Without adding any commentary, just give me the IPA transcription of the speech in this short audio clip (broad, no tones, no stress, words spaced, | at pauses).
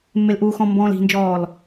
mːelʔuːxɔ̃ mbɔ̃ːli̤nd͡ʒɔːl